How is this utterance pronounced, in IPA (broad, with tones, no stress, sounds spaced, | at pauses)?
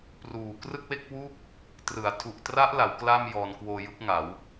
p r uː˨˩ k r ɯ˥˩ k̚ w e˥˩ k̚ w u˥˩ k̚ | t r ɯ˩˦ a̯ tʰ u˨˩ ʔ t r a˦˥ ʔ l a˩˦ w k l a˥˩ m j ɔː˧ n k w oː˧ j ɯ˦˥ k̚ ŋ a˩˦ w